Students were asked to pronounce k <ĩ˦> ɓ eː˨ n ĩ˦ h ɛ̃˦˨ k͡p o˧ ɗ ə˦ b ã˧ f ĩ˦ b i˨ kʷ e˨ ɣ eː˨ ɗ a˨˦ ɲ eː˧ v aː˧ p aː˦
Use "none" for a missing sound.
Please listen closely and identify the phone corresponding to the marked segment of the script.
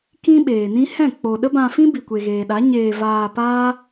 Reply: ĩ˦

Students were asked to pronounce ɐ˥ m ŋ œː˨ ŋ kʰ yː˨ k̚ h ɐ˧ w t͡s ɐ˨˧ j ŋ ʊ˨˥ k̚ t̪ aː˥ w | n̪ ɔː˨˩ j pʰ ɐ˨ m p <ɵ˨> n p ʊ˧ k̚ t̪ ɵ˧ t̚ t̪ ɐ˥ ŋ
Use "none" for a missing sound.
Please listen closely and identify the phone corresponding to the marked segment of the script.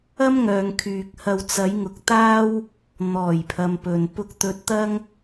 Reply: ɵ˨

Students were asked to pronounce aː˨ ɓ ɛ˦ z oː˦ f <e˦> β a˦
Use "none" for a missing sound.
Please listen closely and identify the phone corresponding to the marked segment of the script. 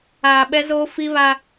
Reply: i˦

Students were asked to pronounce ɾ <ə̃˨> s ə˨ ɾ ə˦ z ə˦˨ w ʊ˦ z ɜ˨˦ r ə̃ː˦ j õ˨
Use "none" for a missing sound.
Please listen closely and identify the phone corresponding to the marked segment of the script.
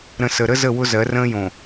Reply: ə̃˨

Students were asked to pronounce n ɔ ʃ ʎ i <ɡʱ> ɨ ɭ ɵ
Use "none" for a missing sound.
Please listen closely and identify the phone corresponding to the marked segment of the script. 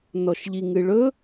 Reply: ŋ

